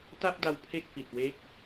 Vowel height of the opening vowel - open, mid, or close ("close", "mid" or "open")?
open